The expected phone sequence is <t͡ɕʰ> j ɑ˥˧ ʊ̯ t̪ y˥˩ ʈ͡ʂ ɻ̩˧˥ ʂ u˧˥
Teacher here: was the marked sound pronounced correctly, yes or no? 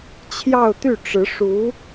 yes